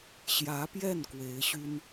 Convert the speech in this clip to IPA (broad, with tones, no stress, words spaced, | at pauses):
ɕjä˧˥pjɛ˥˩n kwe˧˥ɪ̯ɕy˥n